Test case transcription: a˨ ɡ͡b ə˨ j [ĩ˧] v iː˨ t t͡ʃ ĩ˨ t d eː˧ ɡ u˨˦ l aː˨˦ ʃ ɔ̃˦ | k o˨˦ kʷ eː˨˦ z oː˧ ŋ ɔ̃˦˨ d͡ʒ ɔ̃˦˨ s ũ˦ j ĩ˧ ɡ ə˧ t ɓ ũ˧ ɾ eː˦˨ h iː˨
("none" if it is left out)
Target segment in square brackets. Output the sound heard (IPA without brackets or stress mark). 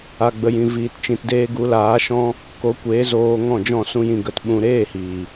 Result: ĩ˨